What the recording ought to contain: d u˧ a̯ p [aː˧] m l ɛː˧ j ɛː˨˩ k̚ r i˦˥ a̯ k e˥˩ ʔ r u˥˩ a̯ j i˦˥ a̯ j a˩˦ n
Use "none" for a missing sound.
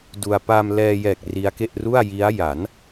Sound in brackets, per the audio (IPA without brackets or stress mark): a˧